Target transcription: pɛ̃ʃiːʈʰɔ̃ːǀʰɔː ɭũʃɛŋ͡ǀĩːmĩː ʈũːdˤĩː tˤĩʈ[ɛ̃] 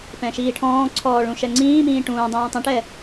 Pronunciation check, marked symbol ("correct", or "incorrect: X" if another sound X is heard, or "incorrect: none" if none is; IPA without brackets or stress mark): incorrect: ɛ